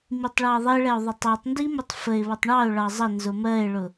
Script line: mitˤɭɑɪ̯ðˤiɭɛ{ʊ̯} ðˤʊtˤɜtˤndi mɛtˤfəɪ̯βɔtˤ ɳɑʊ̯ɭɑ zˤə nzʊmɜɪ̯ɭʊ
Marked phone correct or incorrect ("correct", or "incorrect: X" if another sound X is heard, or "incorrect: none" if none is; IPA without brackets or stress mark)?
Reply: correct